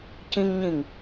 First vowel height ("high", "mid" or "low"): high